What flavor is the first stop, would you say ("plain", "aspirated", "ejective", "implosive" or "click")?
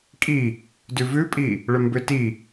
ejective